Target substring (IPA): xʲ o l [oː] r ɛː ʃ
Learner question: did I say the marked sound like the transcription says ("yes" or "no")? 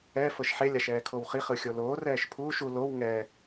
yes